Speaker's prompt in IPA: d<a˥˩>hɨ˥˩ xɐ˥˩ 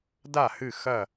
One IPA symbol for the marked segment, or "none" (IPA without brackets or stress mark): a˥˩